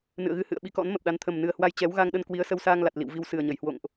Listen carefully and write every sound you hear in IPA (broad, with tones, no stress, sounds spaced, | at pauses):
n ɨ̰˧˨ ə̯ ɣ ɨ˧ h ɨ̰˧˨ ə̯ ɓ i˨˦ k ɔ̰˧˥ n m ə˨˩ p̚ ɗ a˨˦ n t̪ʰ ə˨˩ m n ɨ˨˩ ə̯ h w a˧ j t͡ɕ ɛ˨˦ w ɣ a˧ ŋ ɗ ə˧ n k w i˨˦ ə̯ s ə˧ w s aː˧ ŋ l a˨˩ t̚ l ḭ˧˨ w v i˧ w s ɨ˨˩ ə̯ ɲ ə˧˩ j h w o̰˧˨ ŋ ʔ